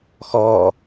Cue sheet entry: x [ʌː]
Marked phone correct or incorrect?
incorrect